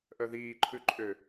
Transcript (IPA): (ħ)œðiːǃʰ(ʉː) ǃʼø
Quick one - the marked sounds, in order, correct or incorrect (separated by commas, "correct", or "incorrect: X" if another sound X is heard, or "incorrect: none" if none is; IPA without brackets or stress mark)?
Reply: incorrect: ʔ, incorrect: ʉ